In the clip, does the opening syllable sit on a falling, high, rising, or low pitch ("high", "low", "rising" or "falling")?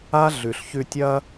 high